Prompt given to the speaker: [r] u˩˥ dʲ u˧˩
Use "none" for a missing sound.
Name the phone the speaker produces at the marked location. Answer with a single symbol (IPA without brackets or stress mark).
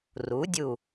r